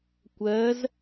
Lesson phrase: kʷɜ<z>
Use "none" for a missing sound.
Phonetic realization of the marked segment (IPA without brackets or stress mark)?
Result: z